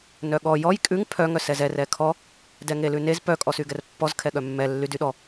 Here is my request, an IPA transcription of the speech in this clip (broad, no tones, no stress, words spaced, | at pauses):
nœɠɔ jɔj kʼʉŋ pʰœ ŋœsɛzɛ rɛkʰɔ | dɛŋelʉnez pœ kʼɔsyɡɛrpːɔz kʰɛɠœmːɛ lːydyɗɔ